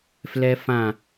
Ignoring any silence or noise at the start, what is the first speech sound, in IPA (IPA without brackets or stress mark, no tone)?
f